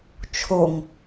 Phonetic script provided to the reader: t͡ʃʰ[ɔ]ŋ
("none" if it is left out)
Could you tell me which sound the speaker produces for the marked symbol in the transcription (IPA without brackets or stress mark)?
o